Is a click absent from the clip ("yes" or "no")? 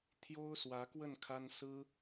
yes